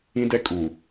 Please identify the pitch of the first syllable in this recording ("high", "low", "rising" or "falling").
high